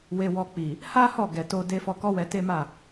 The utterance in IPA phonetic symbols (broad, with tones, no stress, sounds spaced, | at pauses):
w e˧ w ɔ˧ k͡p i˨ | h a˦ h ɔ˦˨ ɡ ɛ˨ t o˧ d e˧ f ɔ˧ k ɔ˦ w ɛ˧ t e˦ m a˦˨